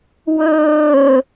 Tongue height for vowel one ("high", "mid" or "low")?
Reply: mid